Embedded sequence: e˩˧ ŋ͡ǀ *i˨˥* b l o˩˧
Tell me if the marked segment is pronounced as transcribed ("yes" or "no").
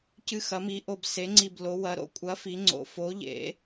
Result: no